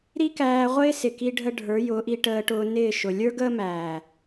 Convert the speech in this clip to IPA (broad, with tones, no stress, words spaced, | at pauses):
ɾi˦kæː˧ʁʷɪː˦ sɪ˨ki˧ɖʱə˧ ɖʱə˞˨˦jʊː˨˦ʔi˧ ʈəː˧ʈʊː˧ nɪː˦˨ʃʊ˨ lʲə˞˦ɡəː˦mæː˨